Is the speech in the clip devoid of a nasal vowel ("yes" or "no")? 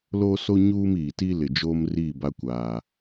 yes